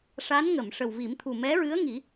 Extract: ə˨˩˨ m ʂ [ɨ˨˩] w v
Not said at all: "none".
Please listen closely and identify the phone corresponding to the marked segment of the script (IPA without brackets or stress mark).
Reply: ə˨˩